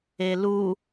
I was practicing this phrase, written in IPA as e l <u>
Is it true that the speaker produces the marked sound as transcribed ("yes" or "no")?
yes